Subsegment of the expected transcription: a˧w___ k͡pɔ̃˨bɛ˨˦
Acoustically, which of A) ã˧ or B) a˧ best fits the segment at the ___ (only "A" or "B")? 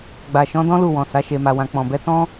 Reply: A